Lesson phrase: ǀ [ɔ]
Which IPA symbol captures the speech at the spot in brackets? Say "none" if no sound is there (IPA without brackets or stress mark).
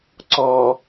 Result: ɔ